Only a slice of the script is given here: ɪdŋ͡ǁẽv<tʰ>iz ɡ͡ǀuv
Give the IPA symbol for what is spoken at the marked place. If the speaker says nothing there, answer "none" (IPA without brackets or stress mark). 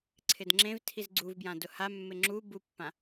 tʰ